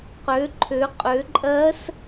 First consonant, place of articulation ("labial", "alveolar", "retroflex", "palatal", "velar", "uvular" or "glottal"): uvular